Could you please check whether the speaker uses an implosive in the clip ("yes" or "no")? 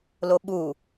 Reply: yes